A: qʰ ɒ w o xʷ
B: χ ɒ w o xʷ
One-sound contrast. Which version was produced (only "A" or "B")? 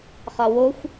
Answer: B